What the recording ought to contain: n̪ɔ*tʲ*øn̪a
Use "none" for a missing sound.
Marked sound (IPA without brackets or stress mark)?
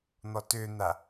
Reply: t